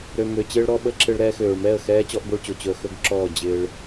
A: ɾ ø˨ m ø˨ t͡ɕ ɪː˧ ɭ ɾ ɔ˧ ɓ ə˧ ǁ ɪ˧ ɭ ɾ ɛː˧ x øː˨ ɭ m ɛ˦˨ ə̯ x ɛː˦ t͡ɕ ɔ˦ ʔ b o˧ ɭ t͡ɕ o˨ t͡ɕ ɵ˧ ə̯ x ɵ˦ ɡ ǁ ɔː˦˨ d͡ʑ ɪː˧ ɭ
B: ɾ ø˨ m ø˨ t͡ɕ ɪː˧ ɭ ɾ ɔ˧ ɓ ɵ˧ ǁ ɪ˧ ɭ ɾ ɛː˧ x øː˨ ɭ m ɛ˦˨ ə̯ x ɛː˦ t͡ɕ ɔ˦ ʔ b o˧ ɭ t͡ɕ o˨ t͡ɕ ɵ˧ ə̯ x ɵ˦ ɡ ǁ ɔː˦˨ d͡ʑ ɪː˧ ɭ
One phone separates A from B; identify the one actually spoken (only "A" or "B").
A